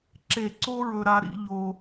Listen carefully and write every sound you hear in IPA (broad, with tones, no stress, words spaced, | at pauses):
ǁe˧˩ǀo˥ɹɵ˧ɾa˧ ɾḭ˩˧ʎo˧